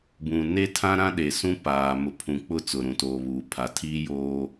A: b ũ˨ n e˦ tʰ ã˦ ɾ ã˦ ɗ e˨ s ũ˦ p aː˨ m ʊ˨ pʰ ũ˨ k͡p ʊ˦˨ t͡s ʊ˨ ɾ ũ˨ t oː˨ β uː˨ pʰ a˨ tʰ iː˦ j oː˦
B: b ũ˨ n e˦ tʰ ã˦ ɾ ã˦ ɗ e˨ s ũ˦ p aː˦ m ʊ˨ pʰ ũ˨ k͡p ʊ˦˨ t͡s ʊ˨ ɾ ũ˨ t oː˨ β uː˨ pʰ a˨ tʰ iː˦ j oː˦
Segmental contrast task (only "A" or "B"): A